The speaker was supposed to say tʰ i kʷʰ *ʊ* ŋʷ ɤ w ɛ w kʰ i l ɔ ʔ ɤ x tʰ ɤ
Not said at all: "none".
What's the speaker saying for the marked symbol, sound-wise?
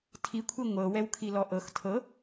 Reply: ɯ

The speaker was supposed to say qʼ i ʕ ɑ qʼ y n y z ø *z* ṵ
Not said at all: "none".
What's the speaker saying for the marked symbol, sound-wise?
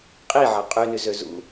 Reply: z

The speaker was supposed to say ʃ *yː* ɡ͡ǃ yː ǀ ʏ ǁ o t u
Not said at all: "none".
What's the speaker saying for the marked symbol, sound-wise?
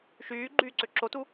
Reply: yː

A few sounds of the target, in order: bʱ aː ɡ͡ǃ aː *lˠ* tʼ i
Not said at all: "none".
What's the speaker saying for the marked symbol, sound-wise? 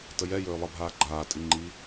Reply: none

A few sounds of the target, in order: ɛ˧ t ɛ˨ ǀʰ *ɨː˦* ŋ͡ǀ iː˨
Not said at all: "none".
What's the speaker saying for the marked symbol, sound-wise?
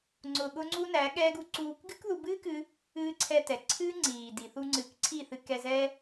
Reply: ɨː˦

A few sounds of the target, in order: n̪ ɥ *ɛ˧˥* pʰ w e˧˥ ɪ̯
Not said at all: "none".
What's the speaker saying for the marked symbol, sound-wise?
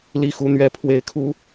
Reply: ɛ˧˥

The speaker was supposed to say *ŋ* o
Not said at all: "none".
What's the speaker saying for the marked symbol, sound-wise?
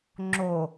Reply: ŋ͡ǁ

